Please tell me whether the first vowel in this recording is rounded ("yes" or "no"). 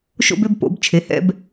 yes